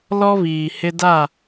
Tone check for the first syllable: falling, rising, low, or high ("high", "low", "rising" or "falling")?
high